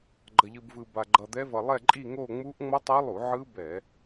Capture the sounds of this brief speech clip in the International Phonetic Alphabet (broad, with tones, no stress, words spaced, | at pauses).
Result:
ɡ͡ǃʌ˧ʎɯ˧bvɯ˧ba˧ ɡ͡ǃʌ˧d̪ɛ˦˥ vʌ˧lˠɛ˥˧ǃʼi˥˧ŋo˥˧ ŋ͡mu˦˥ʔ ŋ͡mʌ˦˥tˤa˦˥lˠu˧˩˧ ʕɯ˦˥bɛ˧˩˧